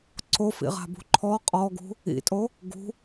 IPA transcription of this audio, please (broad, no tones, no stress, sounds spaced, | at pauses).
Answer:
ǀ o f ḭ ʁ a̤ b ṳ ǃʰ ɔ qʼ ɔ ɡ ṳ | ḭ tʼ o | ɡ ṳ